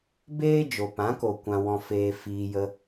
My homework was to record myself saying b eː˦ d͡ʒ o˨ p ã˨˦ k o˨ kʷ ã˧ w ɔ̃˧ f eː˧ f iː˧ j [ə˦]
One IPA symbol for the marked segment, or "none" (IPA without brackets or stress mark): ə˧